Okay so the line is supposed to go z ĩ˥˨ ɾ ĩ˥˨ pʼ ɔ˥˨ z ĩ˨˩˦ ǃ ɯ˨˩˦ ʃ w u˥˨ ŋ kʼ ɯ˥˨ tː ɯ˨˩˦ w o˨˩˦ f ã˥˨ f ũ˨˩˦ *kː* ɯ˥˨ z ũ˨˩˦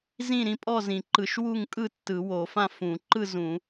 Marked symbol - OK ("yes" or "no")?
no